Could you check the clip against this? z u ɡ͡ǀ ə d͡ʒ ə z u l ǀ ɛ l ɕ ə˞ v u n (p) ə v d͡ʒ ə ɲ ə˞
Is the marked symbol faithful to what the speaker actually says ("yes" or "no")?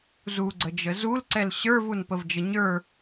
yes